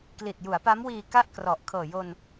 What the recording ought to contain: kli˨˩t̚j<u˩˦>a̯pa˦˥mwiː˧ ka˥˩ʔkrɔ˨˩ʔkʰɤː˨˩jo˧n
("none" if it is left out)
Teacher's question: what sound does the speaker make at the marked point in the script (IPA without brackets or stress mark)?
u˩˦